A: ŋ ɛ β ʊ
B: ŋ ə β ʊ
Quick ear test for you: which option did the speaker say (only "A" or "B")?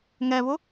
A